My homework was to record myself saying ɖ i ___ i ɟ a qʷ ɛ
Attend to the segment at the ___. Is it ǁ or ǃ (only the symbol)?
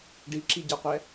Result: ǁ